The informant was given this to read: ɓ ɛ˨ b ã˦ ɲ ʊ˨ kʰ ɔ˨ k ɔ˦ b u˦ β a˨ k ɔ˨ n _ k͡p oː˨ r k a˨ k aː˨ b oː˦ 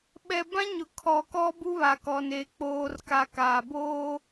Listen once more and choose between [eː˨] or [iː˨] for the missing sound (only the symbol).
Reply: eː˨